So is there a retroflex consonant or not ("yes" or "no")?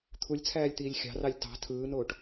yes